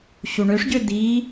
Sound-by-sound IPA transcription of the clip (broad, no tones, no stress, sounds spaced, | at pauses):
ɕ u ɳ ø ʂ ɟ ø d i